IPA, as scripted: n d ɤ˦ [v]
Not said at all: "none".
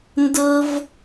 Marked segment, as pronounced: v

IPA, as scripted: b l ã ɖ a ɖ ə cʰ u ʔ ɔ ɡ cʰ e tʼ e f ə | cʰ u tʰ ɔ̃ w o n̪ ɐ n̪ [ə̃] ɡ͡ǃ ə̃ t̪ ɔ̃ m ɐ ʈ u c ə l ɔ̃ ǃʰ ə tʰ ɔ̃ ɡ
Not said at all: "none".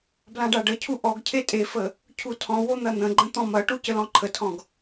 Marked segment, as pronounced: ə̃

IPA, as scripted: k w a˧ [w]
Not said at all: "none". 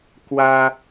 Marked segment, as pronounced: none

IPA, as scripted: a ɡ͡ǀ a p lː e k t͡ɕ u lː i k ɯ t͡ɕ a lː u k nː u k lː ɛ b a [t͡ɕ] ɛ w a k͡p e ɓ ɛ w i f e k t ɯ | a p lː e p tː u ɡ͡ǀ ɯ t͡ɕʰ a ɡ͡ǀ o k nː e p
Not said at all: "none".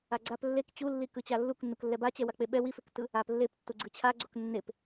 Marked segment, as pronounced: t͡ɕ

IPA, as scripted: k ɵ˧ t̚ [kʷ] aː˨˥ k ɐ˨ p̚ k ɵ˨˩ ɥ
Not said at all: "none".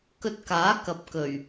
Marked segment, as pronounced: k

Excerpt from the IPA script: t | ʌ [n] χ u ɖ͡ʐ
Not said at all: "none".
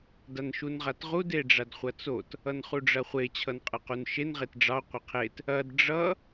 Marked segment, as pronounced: n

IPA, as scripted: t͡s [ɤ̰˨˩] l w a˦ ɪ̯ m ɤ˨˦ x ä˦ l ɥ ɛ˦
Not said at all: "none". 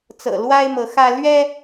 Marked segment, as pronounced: ɤ̰˨˩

